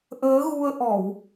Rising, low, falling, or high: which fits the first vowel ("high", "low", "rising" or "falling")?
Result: rising